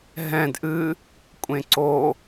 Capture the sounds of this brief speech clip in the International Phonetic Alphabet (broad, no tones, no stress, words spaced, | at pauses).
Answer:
ɦɛ̃d ʔɨ | kʷʼẽǀo